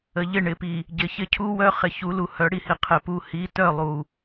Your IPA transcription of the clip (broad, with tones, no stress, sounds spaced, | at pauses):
ə˨ ʎ ɪ˦˨ ɳ ɪ˨ p i˨ | ɟ ɪ˨ ç ɪ˦ cʰ u˦ w œ˦ χ ɪ˨ ç u˨˦ l u˨ h œ˨˦ ɽ i˨ h i˨ qʰ ɪ˨ p u˨ h i˨˦ t œ˦˨ lˠ u˨